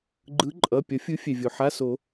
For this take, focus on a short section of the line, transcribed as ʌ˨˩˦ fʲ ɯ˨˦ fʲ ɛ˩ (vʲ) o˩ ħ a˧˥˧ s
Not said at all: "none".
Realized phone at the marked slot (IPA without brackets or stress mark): vʲ